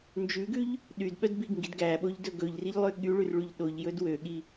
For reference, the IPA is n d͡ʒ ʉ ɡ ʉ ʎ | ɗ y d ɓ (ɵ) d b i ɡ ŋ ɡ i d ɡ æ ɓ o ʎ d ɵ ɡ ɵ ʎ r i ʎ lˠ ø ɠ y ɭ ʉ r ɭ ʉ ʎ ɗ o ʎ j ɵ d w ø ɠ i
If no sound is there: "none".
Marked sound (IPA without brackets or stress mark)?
œ